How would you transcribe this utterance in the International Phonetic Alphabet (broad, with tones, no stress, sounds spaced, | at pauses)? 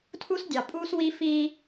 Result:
tʰ u˦ s dʲ ɑ˨ pʼ uː˦ s w i˦ f i˦